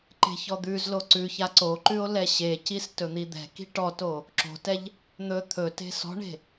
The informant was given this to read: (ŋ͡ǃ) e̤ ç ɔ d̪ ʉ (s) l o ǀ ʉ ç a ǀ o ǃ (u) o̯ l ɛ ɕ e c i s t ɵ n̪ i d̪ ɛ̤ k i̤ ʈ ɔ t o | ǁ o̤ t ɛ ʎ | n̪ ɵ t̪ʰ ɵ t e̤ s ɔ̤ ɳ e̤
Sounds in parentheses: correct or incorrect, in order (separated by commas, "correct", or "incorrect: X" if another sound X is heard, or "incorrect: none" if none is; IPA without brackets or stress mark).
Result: incorrect: ǃ, incorrect: z, incorrect: ʉ